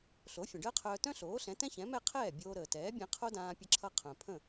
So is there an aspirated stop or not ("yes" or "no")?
yes